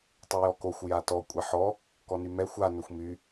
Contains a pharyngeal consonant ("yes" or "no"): yes